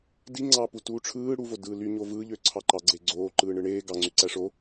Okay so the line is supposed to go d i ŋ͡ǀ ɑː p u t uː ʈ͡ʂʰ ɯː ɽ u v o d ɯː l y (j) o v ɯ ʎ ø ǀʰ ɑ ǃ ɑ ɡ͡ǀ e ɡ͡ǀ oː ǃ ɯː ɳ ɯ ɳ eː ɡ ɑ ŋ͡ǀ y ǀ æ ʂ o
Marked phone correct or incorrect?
incorrect